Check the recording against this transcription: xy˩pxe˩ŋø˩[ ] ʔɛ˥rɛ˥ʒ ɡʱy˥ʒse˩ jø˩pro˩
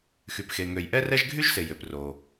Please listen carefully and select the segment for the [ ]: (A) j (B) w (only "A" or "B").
A